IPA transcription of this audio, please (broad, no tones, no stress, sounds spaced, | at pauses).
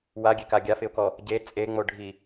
w a ɡʲ e k a ɡʲ a f ɪ ʊ̯ k ɔ | ɟ e t͡sʼ e ŋ͡m o ɖʱ i